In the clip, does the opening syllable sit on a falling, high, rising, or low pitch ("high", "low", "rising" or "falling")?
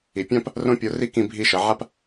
low